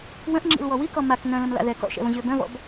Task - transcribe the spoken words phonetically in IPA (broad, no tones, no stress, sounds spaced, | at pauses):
w ə̃ ʔ ŋ͡ǁ ḭ l w ɔ w i k ɔ m a k n œ̃ l ə̃ m l a̰ ð ɛ k ɔ̰ ʃ ɛ̰ v ə̃ ʑ ø b œ̃ v ɔ̰ b